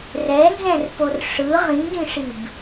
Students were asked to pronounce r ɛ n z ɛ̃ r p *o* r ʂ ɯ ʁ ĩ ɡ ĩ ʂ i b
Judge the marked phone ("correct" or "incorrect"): correct